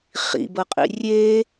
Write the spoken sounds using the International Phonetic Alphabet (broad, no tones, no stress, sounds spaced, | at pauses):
χ ḭ b ɤ qʼ ḭ rʲ e